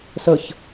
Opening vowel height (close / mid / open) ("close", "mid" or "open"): mid